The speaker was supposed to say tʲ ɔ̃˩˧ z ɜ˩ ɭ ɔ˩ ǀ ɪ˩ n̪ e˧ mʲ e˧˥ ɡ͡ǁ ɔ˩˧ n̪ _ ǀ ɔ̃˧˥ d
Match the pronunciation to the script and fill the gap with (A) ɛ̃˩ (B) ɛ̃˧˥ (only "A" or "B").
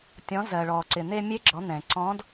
A